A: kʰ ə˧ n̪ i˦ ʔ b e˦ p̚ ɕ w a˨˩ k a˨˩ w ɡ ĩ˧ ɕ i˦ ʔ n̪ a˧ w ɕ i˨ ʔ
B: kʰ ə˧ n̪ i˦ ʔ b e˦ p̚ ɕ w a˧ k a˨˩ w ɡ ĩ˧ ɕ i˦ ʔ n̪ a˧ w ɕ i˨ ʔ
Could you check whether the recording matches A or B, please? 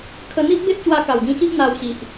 B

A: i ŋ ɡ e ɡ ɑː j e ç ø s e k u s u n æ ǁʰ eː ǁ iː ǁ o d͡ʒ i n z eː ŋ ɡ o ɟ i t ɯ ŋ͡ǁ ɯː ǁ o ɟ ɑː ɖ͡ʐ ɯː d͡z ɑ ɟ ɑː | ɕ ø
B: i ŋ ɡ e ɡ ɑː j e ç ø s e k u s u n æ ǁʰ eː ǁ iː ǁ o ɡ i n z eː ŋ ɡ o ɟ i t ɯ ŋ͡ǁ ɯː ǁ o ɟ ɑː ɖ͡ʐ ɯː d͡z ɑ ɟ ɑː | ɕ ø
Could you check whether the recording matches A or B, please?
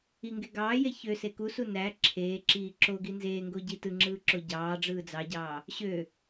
B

